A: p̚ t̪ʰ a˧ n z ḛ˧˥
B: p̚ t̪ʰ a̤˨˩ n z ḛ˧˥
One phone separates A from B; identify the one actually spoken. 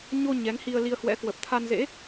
A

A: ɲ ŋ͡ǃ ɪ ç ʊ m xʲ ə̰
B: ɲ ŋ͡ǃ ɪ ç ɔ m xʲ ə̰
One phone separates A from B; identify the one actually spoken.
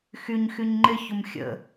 A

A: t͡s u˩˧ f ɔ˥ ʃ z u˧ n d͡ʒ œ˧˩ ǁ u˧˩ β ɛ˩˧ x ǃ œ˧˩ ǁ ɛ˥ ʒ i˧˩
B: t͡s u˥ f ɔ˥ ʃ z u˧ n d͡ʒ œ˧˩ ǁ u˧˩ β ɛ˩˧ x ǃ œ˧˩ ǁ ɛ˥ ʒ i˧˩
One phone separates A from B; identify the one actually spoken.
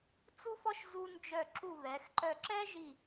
B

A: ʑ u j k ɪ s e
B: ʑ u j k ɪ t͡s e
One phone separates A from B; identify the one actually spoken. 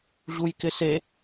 A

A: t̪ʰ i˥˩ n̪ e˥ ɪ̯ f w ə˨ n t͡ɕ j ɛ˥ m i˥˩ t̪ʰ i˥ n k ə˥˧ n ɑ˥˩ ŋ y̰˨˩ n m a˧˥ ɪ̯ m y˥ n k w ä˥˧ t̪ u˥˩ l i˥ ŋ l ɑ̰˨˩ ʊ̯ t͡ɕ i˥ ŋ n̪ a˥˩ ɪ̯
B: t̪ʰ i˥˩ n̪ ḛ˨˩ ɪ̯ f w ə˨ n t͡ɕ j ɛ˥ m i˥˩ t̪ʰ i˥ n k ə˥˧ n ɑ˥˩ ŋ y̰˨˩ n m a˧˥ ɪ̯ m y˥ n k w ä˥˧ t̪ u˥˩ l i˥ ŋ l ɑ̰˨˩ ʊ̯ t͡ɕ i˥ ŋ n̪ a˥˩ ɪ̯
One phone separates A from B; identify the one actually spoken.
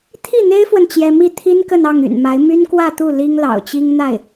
A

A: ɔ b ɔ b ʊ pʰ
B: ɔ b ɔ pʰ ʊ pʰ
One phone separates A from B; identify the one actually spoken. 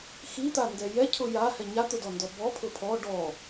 B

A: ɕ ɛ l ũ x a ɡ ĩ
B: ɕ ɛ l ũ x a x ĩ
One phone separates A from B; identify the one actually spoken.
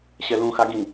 A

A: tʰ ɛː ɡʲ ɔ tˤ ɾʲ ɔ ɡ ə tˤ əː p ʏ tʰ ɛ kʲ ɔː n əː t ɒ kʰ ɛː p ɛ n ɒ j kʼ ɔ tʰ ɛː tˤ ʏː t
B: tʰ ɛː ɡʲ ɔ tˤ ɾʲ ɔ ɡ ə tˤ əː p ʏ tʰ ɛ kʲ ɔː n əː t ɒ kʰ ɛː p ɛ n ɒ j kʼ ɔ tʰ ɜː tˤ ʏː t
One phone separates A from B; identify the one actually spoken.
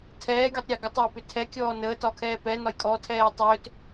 A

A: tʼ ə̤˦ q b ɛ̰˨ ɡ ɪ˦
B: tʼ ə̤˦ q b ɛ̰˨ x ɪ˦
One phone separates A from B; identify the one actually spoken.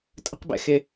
B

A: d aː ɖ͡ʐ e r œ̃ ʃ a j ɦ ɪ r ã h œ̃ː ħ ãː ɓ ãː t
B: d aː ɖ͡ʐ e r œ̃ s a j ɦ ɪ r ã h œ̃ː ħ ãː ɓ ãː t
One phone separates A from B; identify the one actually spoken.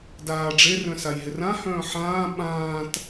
B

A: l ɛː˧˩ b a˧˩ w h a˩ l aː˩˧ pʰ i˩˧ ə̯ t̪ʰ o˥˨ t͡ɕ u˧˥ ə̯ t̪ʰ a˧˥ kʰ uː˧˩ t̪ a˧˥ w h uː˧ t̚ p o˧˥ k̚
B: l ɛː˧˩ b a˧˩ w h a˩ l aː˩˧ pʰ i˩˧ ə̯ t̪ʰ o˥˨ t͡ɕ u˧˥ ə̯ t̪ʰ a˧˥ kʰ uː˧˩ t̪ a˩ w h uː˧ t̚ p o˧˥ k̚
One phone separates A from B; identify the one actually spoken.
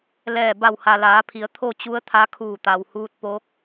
B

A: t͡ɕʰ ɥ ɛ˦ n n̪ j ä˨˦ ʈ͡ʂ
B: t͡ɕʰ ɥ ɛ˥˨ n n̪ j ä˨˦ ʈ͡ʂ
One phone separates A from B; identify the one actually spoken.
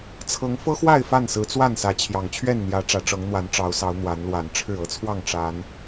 B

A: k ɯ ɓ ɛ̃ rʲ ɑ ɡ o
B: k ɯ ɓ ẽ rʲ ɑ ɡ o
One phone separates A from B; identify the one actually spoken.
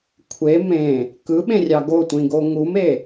B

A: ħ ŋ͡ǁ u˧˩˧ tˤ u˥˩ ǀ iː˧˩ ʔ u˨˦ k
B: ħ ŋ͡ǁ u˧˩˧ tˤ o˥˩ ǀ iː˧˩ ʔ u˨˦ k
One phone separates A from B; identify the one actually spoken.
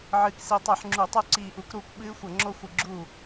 A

